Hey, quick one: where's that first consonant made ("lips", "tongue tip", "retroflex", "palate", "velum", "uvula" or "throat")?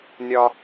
tongue tip